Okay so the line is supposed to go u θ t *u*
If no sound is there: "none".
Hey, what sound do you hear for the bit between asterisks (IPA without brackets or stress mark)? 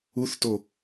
o